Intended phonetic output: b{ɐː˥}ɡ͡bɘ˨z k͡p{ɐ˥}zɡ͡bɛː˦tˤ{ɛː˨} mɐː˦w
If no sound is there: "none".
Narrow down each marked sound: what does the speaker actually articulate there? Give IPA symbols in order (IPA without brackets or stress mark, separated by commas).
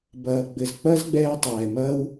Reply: ɐː˨, ɐ˥, ɛː˨